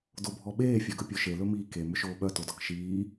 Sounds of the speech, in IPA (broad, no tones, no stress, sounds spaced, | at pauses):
d o bʱ ɔ ɓ eː fʲ œ ɡ ɵ pʲ o ʃ e l ɵ m iː k e m ʏ ʃ oː ɓ œ t o d ɔ k ʃ iː